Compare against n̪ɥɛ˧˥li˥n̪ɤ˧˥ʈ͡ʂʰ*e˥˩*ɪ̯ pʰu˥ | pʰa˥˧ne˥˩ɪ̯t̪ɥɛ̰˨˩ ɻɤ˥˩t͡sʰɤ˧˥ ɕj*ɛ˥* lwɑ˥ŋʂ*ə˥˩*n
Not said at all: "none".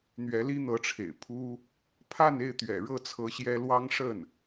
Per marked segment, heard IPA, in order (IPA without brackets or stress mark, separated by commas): ḛ˨˩, ɛ˥, ə˥˩